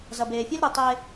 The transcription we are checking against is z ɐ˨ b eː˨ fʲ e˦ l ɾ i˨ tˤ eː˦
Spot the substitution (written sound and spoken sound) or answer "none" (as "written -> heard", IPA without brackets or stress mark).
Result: none